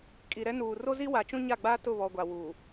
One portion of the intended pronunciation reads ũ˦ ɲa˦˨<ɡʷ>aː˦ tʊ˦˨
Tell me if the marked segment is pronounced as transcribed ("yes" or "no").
no